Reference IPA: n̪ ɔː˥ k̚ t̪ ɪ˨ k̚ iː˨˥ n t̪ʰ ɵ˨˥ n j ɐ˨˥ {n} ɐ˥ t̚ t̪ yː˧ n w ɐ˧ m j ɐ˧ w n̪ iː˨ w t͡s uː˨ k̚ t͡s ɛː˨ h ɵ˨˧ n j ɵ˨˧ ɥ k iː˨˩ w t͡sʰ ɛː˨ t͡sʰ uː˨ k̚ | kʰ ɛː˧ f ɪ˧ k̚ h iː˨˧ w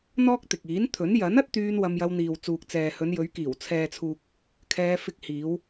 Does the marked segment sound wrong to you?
no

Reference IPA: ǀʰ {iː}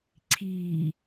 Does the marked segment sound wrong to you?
no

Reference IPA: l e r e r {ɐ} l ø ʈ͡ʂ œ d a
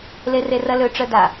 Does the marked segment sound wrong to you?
no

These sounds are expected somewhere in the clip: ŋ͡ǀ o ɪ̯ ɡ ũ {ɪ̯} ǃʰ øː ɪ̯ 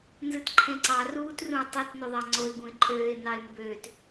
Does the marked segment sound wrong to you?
no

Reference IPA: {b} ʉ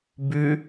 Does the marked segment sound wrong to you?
no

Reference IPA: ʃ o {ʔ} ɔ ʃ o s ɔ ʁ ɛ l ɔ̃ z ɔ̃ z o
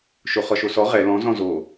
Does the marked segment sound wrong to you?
yes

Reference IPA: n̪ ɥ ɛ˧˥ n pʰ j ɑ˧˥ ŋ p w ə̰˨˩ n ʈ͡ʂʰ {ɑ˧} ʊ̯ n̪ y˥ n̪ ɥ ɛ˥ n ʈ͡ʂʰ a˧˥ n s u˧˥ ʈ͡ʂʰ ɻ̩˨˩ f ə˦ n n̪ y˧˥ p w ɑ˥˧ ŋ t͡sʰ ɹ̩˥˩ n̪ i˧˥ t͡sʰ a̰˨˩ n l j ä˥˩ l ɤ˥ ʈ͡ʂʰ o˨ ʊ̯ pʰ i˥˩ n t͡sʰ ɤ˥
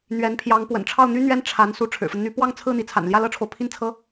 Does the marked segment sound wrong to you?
yes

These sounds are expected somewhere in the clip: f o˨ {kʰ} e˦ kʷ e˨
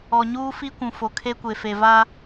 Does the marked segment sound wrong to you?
no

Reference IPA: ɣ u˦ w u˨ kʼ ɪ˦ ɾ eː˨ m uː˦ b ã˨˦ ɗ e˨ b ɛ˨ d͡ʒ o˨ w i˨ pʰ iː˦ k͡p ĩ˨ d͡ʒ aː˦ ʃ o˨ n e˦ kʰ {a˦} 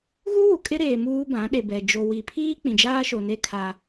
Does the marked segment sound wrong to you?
no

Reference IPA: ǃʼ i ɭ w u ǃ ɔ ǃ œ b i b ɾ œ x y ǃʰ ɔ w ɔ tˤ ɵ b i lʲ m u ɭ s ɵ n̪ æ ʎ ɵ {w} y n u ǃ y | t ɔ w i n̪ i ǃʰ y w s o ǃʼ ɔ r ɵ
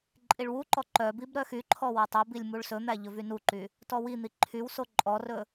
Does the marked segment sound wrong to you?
yes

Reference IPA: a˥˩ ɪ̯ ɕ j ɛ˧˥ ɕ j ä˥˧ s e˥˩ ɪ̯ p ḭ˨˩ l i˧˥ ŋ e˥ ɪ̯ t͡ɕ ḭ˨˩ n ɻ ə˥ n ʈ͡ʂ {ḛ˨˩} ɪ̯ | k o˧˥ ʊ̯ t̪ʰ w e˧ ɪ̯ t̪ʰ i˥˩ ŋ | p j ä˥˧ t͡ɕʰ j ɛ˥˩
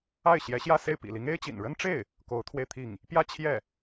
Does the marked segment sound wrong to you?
yes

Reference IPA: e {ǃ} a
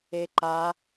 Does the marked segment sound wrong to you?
no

